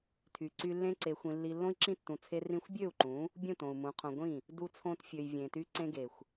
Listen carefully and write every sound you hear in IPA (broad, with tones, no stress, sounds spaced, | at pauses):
tʰ y˨ ǀ y˧ lː ẽ˦ ǀ e˧ xʷ ĩ˧ lː i˧ lː õ˦ i̯ ǁ ĩ˦ tː ũ˧ t͡sʰ e˦ r ĩ˦ xʷ bʲ ø˦˨ u̯ ǃ ũ˨˦ | bʲ ũ˦˨ t õ˨ u̯ m ũ˨˦ qʰ õ˧ ɡʷ ĩ˦˨ | d u˧ t͡sʰ õ˧ t fʲ ø˨ j vʲ ẽ˨ t y˧ ǀ ẽ˧ ɡ e˨ xʷ